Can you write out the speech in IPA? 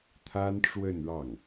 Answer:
t̪ʰa˥nʈ͡ʂwə˥˧nɻɑ˥˩ŋ

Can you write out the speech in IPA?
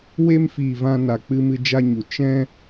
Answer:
we˧mfiː˨ vã˧na˨ k͡pɨ˧mɨ˧d͡ʒa˧ɲu˨ t͡ʃɛ̃˧

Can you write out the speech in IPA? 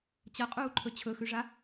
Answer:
t͡ɕɐqʼuːǃʰɵ t͡ɕʰɵxʉʐa

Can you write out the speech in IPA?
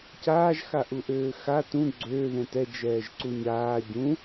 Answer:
caːʒ xaʔuʔøːxa tũ ɡ͡ǀø ðɛ̃tɛ d͡ʒɛːʒǀuɲaː ɟũ

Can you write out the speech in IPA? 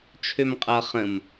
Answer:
t͡ʃʰømqʼʌ χə̃m

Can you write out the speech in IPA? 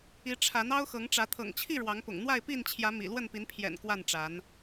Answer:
i˨˦ʈ͡ʂʰa˨˦n ɑ˦ʊ̯xɤ˨˦ŋʈ͡ʂä˨˦ t̪ʰɤ̰˨˩ŋt͡ɕʰi˥˨ ɻwɑ˨˦ŋpʊ̰˨˩ŋ n̪wa˥˨ɪ̯pi˥˨nt͡ɕʰjä˨˦ mḭ˨˩ lwə˥˨npi˨˦npʰjɛ̰˨˩n kwa˥˨nʈ͡ʂa˨˦n

